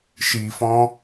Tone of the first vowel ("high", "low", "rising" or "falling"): low